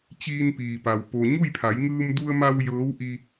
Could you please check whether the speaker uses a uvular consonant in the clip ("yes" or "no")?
no